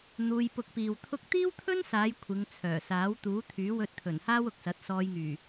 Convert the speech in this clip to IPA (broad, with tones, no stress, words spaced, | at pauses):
n̪uː˧j pʊ˧k̚piː˨wt̪ʰʊ˥k̚ t̪iː˥wt̪ʰɵ˥nsaː˨˧j kʷʰɪ˨˧ŋ t͡sʰœː˨˩saː˨˥w t̪uː˨˥t̪ʰyː˨˥wɵ˧t̚t̪ʰɵ˨˩n haː˥wʊ˨k̚sɐ˨˥t̚ sɔː˧jŋyː˨˩